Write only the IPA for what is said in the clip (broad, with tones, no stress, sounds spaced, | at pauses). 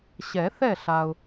ɕ ɛ˨˩˦ θ ɛ˥˨ ɬ a˨ ʊ̯